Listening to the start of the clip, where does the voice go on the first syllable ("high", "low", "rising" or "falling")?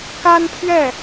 high